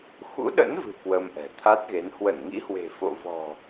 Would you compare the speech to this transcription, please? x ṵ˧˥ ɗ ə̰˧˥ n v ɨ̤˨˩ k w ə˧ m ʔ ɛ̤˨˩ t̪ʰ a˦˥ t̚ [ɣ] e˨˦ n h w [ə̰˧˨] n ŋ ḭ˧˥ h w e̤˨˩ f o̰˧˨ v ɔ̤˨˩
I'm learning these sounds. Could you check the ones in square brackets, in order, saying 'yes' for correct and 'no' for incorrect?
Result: yes, no

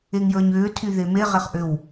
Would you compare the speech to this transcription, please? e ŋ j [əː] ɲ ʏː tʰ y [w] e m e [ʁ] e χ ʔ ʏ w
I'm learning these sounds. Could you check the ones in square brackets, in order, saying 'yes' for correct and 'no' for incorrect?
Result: yes, no, yes

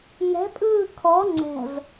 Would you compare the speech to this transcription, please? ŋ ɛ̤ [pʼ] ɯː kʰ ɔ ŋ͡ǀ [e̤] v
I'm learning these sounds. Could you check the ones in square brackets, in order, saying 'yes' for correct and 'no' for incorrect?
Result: yes, no

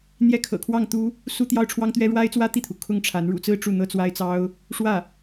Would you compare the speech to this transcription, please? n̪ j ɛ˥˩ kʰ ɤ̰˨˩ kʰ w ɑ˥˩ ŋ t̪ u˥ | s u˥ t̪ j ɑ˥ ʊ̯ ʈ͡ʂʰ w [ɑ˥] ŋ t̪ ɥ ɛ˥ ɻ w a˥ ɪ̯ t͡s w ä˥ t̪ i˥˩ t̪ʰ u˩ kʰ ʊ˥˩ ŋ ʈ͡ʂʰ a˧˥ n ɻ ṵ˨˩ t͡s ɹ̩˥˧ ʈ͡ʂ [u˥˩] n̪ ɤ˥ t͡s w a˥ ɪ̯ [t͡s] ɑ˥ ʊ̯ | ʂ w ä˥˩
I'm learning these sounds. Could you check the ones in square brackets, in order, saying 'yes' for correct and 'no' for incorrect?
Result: yes, yes, yes

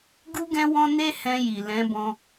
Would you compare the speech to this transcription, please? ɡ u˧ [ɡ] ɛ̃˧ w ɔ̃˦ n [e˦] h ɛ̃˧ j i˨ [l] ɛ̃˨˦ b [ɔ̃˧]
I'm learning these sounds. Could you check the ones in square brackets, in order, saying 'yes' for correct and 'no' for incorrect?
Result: yes, yes, yes, yes

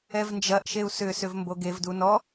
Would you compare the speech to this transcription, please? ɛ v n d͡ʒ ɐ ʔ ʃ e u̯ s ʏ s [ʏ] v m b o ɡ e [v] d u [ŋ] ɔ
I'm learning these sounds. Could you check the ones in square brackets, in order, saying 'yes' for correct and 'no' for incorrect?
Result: yes, yes, no

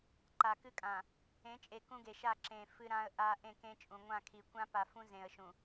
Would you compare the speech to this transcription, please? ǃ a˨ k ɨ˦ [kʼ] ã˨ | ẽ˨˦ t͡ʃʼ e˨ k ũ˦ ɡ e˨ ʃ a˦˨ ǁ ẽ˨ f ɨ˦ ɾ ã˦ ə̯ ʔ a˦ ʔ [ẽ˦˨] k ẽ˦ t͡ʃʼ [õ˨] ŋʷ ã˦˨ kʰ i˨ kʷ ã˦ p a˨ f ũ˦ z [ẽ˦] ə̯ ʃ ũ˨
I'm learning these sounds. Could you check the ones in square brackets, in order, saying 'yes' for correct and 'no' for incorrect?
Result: yes, yes, no, no

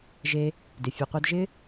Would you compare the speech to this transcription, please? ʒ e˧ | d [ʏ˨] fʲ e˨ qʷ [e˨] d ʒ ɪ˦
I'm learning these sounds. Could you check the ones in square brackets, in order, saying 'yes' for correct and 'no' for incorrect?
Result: no, no

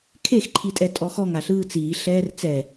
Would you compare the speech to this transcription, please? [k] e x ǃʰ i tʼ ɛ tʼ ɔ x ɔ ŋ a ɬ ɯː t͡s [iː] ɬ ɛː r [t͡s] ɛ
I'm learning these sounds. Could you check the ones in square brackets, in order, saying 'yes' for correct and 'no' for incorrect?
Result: no, yes, yes

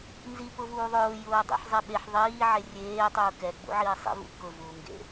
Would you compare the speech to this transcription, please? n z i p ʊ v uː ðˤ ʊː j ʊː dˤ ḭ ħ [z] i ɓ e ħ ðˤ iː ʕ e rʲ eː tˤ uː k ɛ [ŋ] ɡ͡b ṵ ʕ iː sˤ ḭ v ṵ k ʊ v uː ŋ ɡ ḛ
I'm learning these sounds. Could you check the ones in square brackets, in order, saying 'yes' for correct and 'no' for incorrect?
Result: no, no

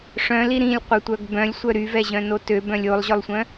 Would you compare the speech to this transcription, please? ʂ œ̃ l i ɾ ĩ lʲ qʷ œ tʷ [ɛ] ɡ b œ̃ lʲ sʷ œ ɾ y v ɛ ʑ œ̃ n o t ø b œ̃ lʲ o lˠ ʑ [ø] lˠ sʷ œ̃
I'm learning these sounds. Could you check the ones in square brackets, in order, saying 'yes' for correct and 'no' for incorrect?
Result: no, no

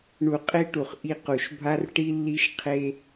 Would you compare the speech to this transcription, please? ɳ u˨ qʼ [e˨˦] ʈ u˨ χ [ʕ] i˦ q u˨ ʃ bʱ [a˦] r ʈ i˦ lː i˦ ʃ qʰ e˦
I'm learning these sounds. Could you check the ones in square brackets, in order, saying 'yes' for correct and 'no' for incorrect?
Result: no, no, yes

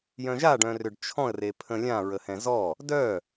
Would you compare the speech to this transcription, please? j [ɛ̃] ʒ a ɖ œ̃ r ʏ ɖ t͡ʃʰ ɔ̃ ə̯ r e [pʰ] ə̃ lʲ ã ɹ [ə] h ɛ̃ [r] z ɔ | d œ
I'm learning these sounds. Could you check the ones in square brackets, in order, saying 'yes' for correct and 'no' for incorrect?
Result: no, yes, yes, no

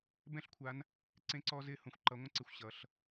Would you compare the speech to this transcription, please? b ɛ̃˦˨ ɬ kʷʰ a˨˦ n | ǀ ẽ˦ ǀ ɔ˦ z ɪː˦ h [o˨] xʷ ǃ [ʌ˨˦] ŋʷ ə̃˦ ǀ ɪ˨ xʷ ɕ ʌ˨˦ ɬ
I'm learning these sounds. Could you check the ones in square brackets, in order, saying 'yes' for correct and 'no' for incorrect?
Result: no, yes

